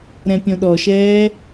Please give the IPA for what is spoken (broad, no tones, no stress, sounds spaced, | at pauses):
ɾ ɛ̃ pʲ õ ɗ ɔ ʃ ɛː